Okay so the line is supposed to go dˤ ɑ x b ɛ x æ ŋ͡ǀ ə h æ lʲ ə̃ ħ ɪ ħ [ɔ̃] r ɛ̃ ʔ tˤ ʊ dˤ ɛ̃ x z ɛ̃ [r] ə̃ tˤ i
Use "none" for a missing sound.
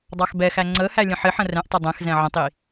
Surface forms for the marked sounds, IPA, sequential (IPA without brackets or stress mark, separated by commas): ə̃, ʕ